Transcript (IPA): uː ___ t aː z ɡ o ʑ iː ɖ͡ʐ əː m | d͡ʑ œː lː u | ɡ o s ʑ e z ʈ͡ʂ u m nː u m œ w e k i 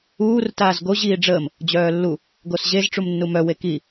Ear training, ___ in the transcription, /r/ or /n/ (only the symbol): r